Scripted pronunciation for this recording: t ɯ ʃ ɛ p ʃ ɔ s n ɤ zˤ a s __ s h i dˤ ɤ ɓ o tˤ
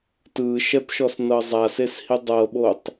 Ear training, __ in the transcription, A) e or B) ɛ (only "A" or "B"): A